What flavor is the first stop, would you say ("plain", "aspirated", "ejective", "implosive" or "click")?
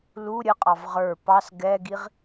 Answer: ejective